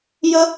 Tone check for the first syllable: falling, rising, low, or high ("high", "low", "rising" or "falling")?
high